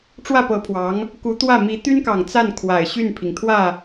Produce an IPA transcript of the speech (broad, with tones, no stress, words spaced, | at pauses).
ʈ͡ʂwä˥˩pɤ˧˥pʰwɑ˧˥ŋ | ku˧˥t̪wä˥˩mi˧˥ t̪y˥nkɑ˨˩ŋt͡sa˥˩n kʰwa˨˩ɪ̯ɕy˥˩npʰi˩ŋt̪ʰwä˥˩